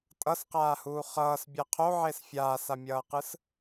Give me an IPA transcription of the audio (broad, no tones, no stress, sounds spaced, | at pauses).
tʼ ʌ s q aː h uː χ ʌː s bʲ a qʰ o ʕ e s fʲ aː s a mʲ ʌː q ɯ s